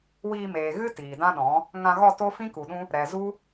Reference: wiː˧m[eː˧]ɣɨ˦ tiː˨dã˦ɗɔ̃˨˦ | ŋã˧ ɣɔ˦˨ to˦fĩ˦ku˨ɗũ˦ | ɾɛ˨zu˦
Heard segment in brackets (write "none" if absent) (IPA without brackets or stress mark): eː˨